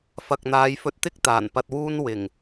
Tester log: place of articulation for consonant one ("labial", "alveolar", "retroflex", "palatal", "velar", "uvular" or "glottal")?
labial